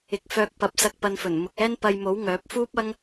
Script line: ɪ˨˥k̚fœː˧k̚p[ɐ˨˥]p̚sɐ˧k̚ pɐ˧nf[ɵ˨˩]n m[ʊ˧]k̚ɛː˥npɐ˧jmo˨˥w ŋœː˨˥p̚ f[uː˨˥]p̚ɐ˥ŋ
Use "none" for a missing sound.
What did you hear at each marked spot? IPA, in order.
ɐ˨˥, ɵ˨˩, ʊ˨, uː˥

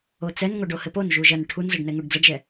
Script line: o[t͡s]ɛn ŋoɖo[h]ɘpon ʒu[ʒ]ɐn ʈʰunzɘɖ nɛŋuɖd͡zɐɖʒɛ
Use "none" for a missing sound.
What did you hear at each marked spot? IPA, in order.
t͡s, h, ʒ

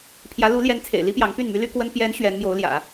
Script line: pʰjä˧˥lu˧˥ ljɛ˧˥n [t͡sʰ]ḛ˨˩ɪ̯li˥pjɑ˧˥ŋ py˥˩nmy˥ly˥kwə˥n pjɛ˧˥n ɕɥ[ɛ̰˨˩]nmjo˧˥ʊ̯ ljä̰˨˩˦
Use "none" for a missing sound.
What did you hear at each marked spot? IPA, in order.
t͡sʰ, ɛ˧˥

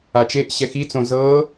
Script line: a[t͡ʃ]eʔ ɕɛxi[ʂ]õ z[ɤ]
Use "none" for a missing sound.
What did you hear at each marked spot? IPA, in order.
t͡ʃ, t͡s, ɤ

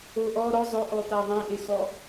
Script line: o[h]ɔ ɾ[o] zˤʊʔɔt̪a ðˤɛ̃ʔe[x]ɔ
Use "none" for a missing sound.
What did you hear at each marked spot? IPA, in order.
ʔ, ɔ, x

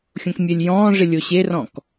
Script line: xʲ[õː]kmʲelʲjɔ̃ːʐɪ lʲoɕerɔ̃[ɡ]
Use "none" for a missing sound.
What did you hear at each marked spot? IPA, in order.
õ, k

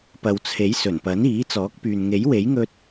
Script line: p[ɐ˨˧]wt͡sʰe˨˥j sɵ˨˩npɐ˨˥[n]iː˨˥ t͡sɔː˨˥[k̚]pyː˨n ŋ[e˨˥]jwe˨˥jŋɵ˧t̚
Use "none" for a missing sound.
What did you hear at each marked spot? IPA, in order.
ɐ˨, n, k̚, e˨˥

